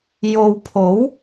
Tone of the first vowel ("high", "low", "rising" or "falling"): low